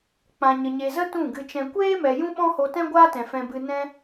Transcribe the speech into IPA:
k͡p ã˨ ɲ ə˨ ɲ e˨ z ə˦ t ũ˦˨ ɡ ɨ˧ t͡ʃ ɛ̃˧ kʷ eː˦ m ɛ˨ j ũ˦ ɓ ɔ̃˦ h o˧ t ɛ̃˦ ɡʷ aː˦ t ɛ̃˨ f ɛ̃˧ b ɨ˧ n ɛ̃˦

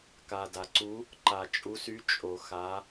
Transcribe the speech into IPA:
k a˨ d a˨ ǀ u˧˥ | ǃ a˨ t͡ʃʼ u˧˥ s y˧˥ t͡ʃʼ o˨ x a˧˥

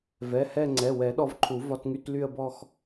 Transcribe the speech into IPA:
v ɛ˩˧˩ h ɛ˥˧ ŋ͡ǀ ɛ˩˧˩ w ɛ˨˩˦ ɗ ɔ˧ v ǃʰ u˨˩˦ v ɒ˧˥˧ t ŋ y˧˥˧ t l y˥˧ ə̯ b ɔ˥˧ x

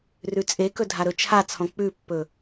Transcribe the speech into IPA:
r ʉ t͡sʼ e k ɵ dʱ a ɾ ɵ t͡ʃʰ a t͡sʰ ɔ̃ k͡p ʉ pː ɵ

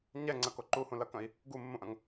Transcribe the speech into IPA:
ɲ ɛ ŋ͡ǀ ɐ k o ǃ u h ũ l ɐ k ɐ̃ i̯ | ɡ u mː ũ ʔ ɐ̃ ŋ

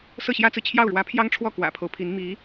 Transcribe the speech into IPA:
s ɤ˥˩ ɕ j ä˥ t͡s ɹ̩˨ t͡ɕʰ j ɑ˥˩ ʊ̯ ɻ w ä˧˥ pʰ j ɑ˥ ŋ ʈ͡ʂʰ w ɔ˥˩ k w ä̰˨˩ pʰ o˦ ʊ̯ pʰ i˧˥ n m i˧˥

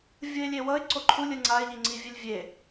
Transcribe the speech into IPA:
vʲ ɯ ɪ̯ lʲ e w ʌ ɪ̯ ǀ o ǃʰ u lʲ ɯ ŋ͡ǀ a ɪ̯ ʎ i ŋ͡ǀ i vʲ ɛ lʲ vʲ e

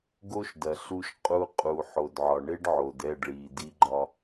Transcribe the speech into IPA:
ɡ o˦ ʃ d ɐ˨ ɬ u˧ ʃ qʼ u˧ qʼ u˨ ħ o˨ d ʕ ɒ˨ ɳ e˦ ɖ ʕ o˨ d ɛ˦˨ ɖ ɭ iː˨ d i˧ ɡ͡ǃ ɒ˧

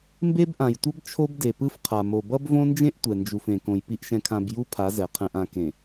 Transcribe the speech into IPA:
m b e˦ b ʔ ã˨ j tʷ ʌ˦ b t͡ʃʰ o˦ b d e˨ p ɯ˦ f qʰ a˨ m o˨ b ʌ˦ b v õ˦ n d͡ʒ ẽ˦ ʔ tʷ ɛ˨ n d͡ʒ u˨ f ẽ˨ k õ˨ j p i˨ ʔ ʃ ɛ̃˨ kʰ ã˨ b j u˦ pʰ a˨˦ z ɛ˨ qʰ ɛ̃˨ ʔ ã˨ k ẽ˨

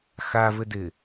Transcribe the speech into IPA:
x a v ɘ d ɪ

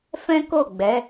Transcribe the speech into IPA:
f ɛ̃˦ k o˦˨ ɡ͡b ɛ˨˦

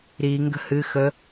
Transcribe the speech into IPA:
ɾ i ŋ ɡ ə̤ h ɨ x ə

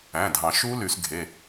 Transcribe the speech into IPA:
æ̃˩˧˩ dʱ ɑ̃˨˩˦ ʃ u˦˥ l y˨˩˦ s ɡʱ e˩˧˩

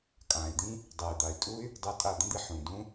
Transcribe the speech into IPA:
kʼ ãː˨ i̯ d̪ ĩ˦ | dˤ eː˨ d̪ a˨ y̯ tʼ u˦ y̯ | dˤ o˧ tʼ a˦˨ d̪ ə̃˦ d̪ i˧ ħ ũ˨ d ũ˦

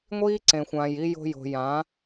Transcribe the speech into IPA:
ŋʷ iː˦ ǀ ẽ˨ xʷ ãː˨ j i˧ j o̤˧ j o̤˨ j ã˨˦

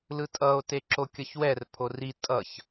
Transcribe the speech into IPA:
l ɯ tʼ ʌ o̯ t e ǁ o kʲ ʌ ç w ɛ r pʰ o r i tʼ ʌ ç

